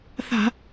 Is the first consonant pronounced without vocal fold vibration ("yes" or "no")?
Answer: yes